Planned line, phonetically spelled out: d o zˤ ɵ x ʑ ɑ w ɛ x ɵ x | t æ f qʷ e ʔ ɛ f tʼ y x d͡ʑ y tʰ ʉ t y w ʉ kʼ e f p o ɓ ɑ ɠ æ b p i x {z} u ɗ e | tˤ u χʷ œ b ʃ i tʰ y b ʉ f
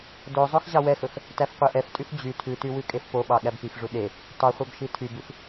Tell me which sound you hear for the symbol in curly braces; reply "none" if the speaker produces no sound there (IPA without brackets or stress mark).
ʐ